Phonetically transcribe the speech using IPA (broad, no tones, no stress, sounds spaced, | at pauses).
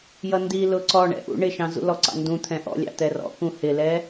j ʌ n d i l ʊ ǀ ɔ ɳ ɛ̰ ʔ ṵ ɳ ɪ ʃ ɑ̃ z ṵ l ɔ ǀ ɑ̰ n d ũ t̪ʰ ɛ̃ ʔ ɔ̰ lʲ ɑ̰ t̪ ɛ r ɔ̰ k ũ h ɪ l ɛ